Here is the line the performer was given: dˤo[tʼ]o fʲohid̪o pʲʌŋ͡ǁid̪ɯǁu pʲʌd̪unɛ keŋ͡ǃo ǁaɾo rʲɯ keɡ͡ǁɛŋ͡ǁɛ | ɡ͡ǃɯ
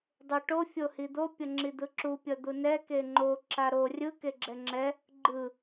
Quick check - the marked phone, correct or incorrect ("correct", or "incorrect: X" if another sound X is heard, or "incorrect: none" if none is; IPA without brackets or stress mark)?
incorrect: ʈ